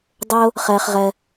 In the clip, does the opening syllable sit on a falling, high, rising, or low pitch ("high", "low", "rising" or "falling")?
high